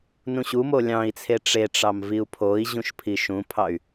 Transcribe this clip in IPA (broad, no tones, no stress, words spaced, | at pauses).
nũɕumo lʲɑ̃i̯t͡sʰe ʈ͡ʂeʈ͡ʂɑm viu̯pʰoi̯ʑũʃ pʰiʃũpʰɑy̯